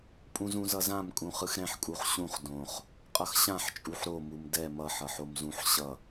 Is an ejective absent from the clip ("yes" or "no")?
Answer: no